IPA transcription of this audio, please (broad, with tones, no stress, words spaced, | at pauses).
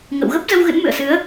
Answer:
ŋə̰˧˨w ɣə˦˥p̚zə˧w ɣɨ̰˧˥nmɨ̰˧˨ə̯sɨ˨˦ə̯